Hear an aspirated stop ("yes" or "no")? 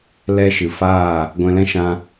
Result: no